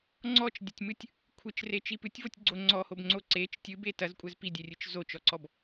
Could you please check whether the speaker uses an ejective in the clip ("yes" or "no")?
yes